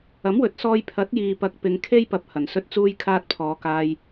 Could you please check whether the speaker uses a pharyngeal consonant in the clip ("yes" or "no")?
no